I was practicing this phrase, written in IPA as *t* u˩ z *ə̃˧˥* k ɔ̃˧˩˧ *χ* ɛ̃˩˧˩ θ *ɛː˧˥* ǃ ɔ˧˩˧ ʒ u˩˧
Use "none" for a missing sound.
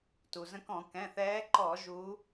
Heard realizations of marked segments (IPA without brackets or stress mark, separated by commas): t, ə̃˧˥, k, ɛː˧˥